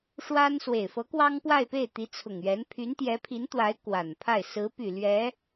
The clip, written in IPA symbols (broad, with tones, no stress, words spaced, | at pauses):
ʂwa˥n swe˨˩ɪ̯fɤ˧˥ kwɑ˥ŋpwa˥˧ɪ̯pe˥˩ɪ̯ t̪i˧˥t͡sʰʊ˨˩ŋɥɛ˧˥n pʰy˧˥nt̪jɛ˧˥pʰi˧˥nt̪wa˧˥ɪ̯ kwa˨˩npʰa˥˩ɪ̯ sɹ̩˧˥py˨˩ lɥɛ˧˥